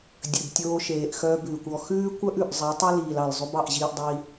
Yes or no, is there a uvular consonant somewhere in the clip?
no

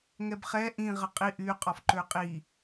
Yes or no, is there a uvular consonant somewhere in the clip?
yes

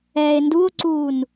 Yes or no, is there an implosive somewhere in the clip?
no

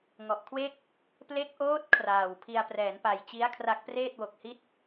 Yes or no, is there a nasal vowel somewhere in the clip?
no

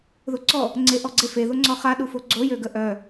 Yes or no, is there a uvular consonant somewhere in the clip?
yes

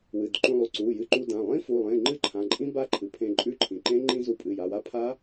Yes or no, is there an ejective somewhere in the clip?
yes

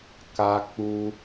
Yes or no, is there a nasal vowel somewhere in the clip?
no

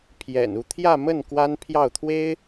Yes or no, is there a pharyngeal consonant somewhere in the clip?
no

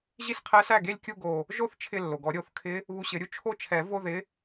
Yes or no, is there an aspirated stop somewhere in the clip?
yes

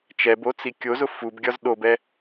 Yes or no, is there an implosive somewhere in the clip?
yes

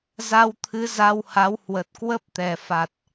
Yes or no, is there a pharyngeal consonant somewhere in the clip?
no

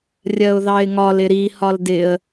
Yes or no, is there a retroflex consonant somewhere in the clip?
no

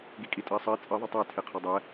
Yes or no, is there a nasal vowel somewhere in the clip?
no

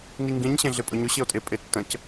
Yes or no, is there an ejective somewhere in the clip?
yes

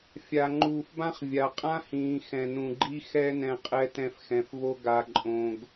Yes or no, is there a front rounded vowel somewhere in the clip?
no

